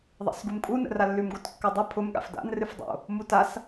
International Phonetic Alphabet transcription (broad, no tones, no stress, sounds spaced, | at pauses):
ðˤ a̰ s ɡ u m kʼ u n ə̰ r a lː ʉ m ɡ o t kː ʉ dˤ ɨ pʰ ʊ m ɠ a̰ f d a̰ n r ɨ f dˤ o̰ | m u t a s